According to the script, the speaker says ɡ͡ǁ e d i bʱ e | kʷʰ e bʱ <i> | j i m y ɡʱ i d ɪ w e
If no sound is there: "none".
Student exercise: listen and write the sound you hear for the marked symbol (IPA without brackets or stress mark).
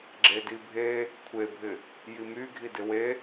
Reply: ɪ